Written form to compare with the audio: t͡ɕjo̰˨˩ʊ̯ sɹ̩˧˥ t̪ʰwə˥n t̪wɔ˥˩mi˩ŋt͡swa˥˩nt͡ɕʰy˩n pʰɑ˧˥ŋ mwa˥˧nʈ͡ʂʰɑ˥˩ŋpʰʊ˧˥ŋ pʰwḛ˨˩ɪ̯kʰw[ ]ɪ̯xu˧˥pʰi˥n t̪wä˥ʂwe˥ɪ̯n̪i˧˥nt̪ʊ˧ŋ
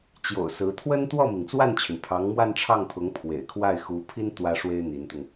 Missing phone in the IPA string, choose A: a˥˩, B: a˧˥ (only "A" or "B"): A